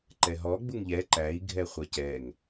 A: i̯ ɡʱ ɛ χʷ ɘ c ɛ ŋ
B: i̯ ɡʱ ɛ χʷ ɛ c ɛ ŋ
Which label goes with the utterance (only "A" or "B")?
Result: B